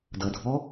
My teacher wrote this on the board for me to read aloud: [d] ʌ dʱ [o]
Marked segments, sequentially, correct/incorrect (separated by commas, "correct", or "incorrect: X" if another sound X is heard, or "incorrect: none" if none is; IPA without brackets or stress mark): correct, incorrect: ɔ